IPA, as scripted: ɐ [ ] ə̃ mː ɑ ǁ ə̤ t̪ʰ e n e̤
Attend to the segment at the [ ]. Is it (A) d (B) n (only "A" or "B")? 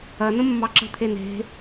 B